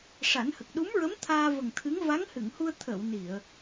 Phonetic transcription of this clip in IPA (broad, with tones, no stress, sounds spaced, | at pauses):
ʂ a˨˩˦ n h ə˨˩ k̚ ɗ u˧˥ m ɹ ə˧˥ m t̪ʰ aː˧ v ə˨˩ ŋ t̪ʰ ɨ˧˥ ŋ v a˧˥ ŋ h ɨ˨˩˨ ŋ h u˧ ə̯ t̪ʰ ə˨˩˨ w n i˨˩˨ ə̯